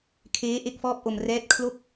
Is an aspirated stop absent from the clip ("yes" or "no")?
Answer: no